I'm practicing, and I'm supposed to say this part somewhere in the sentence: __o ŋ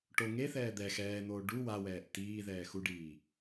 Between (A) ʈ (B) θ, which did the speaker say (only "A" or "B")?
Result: A